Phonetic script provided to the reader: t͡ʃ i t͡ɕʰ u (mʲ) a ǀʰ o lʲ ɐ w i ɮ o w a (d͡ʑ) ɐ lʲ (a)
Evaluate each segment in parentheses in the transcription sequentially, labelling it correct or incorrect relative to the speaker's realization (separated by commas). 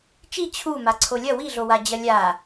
incorrect, correct, correct